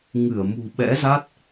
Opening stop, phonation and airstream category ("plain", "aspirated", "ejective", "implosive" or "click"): implosive